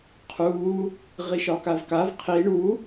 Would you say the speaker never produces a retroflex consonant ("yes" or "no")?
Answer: no